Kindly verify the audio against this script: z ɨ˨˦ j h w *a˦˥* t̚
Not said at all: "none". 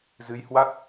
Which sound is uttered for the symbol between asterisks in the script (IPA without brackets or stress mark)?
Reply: a˦˥